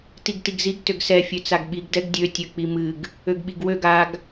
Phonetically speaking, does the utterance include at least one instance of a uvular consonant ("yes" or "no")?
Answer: no